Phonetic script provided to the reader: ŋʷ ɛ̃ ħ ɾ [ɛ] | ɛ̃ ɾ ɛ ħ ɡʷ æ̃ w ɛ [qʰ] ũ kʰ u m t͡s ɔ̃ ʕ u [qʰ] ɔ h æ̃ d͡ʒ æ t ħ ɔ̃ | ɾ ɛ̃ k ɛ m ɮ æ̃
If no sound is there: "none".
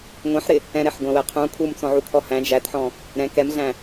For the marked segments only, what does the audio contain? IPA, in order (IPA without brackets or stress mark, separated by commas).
ɪ, qʰ, kʰ